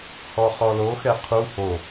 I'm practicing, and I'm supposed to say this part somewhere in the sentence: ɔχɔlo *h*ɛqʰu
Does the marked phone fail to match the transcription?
yes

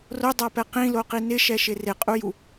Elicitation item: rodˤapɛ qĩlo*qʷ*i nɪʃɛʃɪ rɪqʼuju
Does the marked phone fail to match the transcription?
yes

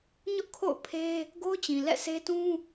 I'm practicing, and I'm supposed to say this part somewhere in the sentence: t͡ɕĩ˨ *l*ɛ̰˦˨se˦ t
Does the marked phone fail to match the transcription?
no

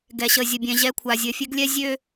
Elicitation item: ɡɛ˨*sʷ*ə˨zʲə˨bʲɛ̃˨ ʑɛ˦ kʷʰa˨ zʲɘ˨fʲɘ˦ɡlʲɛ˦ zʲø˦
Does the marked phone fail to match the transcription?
yes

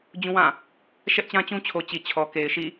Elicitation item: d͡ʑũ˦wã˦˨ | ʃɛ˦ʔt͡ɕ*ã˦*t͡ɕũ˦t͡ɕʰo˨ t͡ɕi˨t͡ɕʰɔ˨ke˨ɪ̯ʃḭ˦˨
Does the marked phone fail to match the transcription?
no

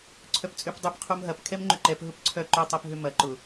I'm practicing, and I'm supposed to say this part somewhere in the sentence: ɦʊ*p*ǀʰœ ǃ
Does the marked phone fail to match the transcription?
no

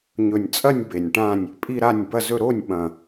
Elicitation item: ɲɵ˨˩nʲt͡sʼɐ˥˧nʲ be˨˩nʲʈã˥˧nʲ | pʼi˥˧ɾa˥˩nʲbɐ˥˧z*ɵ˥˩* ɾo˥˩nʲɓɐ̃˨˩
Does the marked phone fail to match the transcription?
yes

